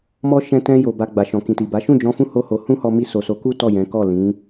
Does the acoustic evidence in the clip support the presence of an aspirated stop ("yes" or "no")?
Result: no